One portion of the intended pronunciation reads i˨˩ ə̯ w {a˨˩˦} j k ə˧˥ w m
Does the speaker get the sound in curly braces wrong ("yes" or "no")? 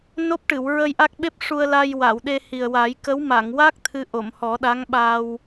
no